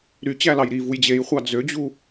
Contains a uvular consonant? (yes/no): yes